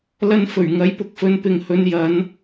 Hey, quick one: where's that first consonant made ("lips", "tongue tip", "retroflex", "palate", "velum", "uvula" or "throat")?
tongue tip